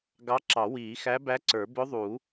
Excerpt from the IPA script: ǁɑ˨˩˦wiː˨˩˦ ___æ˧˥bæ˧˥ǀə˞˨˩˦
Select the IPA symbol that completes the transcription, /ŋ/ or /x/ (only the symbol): x